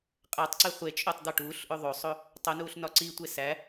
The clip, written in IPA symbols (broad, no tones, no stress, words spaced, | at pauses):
qʼætˤǀe χʷet͡ʃʼotˤ d̪ɒʈuːɬʔo ðˤosˤo | tˤonuːɬ nɒǀitʷe sæ